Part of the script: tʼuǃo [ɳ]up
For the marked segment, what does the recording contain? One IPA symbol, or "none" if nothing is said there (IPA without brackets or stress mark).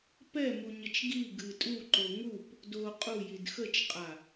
ŋ